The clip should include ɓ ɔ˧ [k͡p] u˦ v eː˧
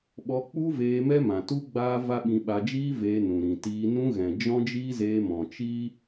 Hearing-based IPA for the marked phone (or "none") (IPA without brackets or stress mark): k͡p